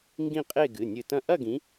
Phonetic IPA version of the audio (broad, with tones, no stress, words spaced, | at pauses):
ŋɡĩ˥˧qʼe˥˧ɡɨ˩˧˩ nʲɨ˧˩tɐ̃˥˧ ʔɐ˥˧ɡĩ˨˦